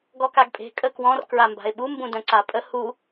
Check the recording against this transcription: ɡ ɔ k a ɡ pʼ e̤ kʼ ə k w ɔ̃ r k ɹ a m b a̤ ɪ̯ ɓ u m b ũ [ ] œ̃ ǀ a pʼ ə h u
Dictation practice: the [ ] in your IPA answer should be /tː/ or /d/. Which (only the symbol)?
d